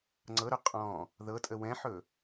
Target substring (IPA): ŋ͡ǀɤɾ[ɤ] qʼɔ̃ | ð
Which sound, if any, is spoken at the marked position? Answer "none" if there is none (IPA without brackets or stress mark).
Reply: ɵ